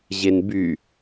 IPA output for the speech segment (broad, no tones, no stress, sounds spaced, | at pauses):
ʑ e n b y